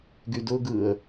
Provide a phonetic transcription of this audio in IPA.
ɡ y d ʊ ɡ ɯ ə̯

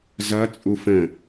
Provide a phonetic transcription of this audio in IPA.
z ʌ t͡sʼ u f ə̃

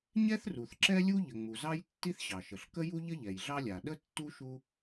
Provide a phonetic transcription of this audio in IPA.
ɲ ɛ˥ θ r u˩ θ ǁ ɛ˥ lʲ u˥ ʎ ə˩ ŋ͡m u˩ z ɑ˥ j tː i˥ θ ɕ ɑ˩ ʃ ə˩ ɬ k ə˥ j u˥ ʎ ə˥ ʎ ɛ˩ j ɮ ɑ˥ lʲ a˩ ɗ ə˥ tː u˥ ʃ u˥

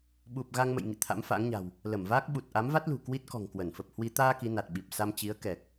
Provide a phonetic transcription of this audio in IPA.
ɓ u˨˩ p̚ ɣ a˧ ŋ m ə̰˧˨ j ŋ ḭ˧˨ t̪ʰ a̰˧˥ m f a̰˧˥ ŋ ɲ a̤˨˩ w | l ə˧˩ m v aː˦˥ k̚ ɓ u˨˩ t̚ ʔ a˨˦ m v a˦˥ t̚ l ṳ˨˩ k w i˦˥ t̚ k ɔ̤˨˩ ŋ k w ə˧˩ n f ə˨˩ p̚ h w i˧ t̪ aː˧ k i˨˦ n a˨˩ t̚ ɓ i˨˩ p̚ s a˧ m t͡ɕ i˨˦ ə̯ k ɛ˨˩ k̚

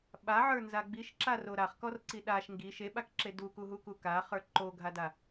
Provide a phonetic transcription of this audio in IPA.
ɓ a ʕ ə˞ n z a ɡ͡b i ʃ ǁ a r o ɾ a χ k ɔ r ǀ i ɗ a ʃ ŋ ɡ i ʃ e ɓ a k ǁ e d u k u ɦ u k u k a χ ə˞ ǃ o ɡʱ a d a

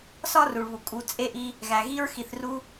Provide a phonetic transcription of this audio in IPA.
s ɒ˥ r u˩ ɭ β u˩ kʼ u˩ t͡sʼ e˥ ʔ i˦ | ɣ æ˩ ɣ i˦ ɹ x i˨ θ r u˦

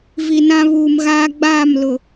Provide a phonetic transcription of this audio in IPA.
v i˨ n ã˦ β uː˨ m ɣ aː˦ ɡ͡b aː˦˨ m l ʊ˨

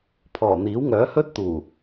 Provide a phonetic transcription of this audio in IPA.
pʰ ɔː˨˩ n̪ iː˨˥ w ŋ œː˨˥ h ɵ˥ t̚ t̪ uː˨˩

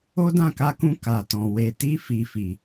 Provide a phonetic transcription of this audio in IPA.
o˦ d ã˦˨ k a˧ k ũ˧ k a˨ t ɔ̃˨ w e˨ t i˧ f i˨ f i˨

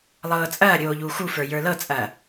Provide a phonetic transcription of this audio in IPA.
lˠ ɤː t͡sʼ ɐː ɾʲ oː ʎ uː x u f ə˞ j ə˞ l ɤ t͡sʼ ɐː

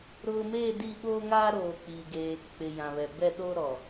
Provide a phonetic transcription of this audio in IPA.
ɾ ʊ˨ m eː˦˨ d i˦˨ ɓ oː˦ ŋ aː˦ ɾ oː˨ k͡p i˨ ɡ eː˨ k͡p ɪ˨ j ã˨ β ɛ˨ b ɛ˦˨ ɗ o˦ ɾ ɔ˨

